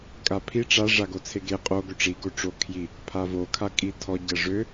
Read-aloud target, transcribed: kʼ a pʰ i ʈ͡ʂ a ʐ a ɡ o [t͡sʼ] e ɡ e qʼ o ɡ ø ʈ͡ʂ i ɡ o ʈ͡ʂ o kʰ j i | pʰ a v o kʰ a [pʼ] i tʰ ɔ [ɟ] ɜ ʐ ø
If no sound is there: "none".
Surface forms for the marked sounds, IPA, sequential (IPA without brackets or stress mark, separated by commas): t͡sʰ, kʼ, ɟ